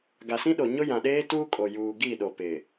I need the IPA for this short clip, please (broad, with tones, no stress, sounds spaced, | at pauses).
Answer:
ɡ a˨ s ĩ˦ ɗ o˨ ɲ ʊ˦ j ã˨ ɗ eː˦ t uː˦ kʼ o˨ j uː˨ ɡ i˦˨ ɗ o˨ p ɪ˨